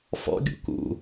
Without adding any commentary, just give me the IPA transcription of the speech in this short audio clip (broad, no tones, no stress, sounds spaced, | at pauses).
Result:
f ɔ̰ ɡʲ ṵ k ṵ